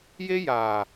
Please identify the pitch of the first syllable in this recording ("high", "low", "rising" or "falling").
high